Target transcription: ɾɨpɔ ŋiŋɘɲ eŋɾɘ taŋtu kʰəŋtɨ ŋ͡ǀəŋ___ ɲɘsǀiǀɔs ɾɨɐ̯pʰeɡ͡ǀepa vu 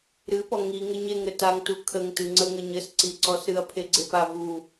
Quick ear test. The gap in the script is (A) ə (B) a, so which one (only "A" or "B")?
A